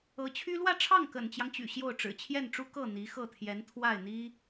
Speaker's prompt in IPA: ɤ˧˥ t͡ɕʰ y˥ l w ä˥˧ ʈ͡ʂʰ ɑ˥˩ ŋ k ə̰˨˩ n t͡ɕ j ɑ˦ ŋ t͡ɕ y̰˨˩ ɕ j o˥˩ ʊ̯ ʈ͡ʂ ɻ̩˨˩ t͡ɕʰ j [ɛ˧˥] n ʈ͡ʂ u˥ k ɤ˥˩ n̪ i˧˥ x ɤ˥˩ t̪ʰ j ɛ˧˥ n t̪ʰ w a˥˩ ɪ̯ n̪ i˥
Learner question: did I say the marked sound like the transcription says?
no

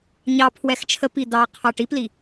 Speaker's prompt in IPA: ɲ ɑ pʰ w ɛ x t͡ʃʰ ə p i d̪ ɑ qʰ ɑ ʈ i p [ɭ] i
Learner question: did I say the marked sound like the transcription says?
no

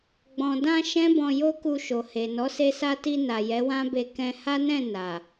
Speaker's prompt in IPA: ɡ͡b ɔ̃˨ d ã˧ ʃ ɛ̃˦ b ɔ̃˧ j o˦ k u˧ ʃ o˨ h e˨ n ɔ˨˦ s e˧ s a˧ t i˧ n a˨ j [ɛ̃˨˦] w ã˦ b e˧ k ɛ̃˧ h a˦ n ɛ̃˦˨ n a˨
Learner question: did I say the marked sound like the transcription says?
no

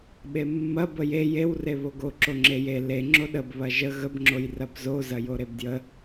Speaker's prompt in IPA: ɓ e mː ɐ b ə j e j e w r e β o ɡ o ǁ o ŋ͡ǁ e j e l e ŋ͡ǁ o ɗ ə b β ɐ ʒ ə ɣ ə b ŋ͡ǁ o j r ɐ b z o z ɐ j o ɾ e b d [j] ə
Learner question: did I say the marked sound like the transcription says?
yes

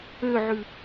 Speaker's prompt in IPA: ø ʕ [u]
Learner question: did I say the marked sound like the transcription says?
no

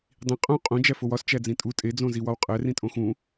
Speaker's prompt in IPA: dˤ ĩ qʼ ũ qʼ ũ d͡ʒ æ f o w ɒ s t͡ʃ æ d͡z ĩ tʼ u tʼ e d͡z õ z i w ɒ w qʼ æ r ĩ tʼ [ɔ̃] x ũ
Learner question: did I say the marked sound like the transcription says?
no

